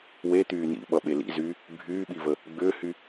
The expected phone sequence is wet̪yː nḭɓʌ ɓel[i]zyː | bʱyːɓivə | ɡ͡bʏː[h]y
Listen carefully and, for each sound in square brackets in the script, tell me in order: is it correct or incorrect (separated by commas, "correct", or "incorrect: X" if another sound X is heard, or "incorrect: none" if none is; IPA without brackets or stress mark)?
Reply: incorrect: ḭ, correct